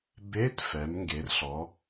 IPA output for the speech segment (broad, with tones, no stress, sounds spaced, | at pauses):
b e˧˥˧ t f ɛ˩˧ m ŋ ɡ e˩˧ r ɬ ɔ˩˧